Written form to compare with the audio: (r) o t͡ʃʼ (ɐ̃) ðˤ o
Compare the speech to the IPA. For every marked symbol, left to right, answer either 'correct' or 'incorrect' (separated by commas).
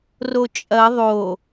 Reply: correct, incorrect